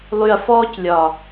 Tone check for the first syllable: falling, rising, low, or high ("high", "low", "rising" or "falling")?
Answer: low